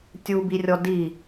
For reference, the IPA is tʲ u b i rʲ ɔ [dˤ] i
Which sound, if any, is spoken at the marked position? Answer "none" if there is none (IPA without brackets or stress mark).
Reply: d